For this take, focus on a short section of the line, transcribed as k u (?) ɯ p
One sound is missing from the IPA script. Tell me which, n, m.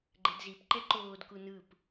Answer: n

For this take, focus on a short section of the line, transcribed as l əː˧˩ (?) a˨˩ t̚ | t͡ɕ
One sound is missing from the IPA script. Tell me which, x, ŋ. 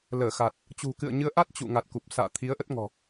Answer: x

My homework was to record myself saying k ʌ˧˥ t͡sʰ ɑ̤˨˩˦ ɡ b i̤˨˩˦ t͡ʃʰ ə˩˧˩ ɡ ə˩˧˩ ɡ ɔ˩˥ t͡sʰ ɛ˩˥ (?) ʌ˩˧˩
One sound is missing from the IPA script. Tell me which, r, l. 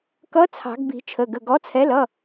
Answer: l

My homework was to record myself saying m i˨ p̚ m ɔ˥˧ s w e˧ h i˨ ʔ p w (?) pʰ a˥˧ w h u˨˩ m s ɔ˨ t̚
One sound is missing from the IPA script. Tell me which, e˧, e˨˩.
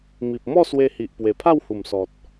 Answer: e˨˩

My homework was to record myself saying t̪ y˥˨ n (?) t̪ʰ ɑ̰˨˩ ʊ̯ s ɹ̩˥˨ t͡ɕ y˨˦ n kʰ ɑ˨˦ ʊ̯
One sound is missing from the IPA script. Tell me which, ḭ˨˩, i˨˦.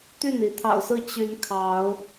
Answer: i˨˦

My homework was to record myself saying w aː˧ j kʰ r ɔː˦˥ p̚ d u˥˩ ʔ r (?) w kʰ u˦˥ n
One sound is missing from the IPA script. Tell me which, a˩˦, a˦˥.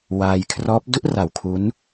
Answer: a˩˦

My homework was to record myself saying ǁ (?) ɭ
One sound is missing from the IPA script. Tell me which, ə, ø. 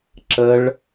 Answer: ə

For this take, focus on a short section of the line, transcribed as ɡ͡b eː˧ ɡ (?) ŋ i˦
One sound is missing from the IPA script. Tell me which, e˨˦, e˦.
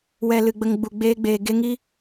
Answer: e˦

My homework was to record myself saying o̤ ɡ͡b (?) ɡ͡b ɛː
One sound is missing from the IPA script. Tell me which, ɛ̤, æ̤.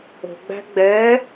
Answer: æ̤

